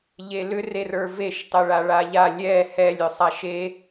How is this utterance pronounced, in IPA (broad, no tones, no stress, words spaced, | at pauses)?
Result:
ʎelʏ rerə˞veʃ tˤeɭaɭaʎa lʲɛ hɛlʲ ʏsˤaʃe